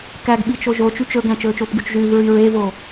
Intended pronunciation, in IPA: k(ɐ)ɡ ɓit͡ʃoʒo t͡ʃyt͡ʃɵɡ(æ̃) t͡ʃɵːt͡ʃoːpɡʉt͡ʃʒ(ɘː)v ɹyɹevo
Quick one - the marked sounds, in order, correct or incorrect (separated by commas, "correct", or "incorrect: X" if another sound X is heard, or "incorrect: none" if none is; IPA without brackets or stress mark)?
incorrect: æ, correct, incorrect: ʉː